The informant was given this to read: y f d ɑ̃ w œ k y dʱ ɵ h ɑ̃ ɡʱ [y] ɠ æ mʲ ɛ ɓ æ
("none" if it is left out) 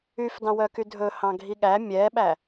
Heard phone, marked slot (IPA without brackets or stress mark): i